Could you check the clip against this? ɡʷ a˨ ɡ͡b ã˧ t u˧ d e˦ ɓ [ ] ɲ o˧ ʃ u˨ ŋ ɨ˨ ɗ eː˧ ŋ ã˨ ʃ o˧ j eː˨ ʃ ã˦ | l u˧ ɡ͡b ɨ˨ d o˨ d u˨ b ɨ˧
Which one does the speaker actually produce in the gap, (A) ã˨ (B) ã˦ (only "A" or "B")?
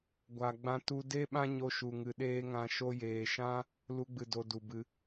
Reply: B